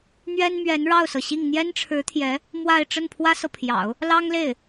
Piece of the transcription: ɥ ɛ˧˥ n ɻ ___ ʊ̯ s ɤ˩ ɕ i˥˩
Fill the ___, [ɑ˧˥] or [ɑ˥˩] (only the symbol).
ɑ˥˩